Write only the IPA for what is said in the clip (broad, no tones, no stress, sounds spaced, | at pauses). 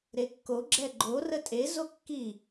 ɾ e kː o ɡ͡ǁ ɛ ɡ͡ǃ o r ə tʼ e z o kː i